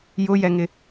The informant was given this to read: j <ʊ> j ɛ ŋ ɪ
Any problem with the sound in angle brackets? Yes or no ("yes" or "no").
no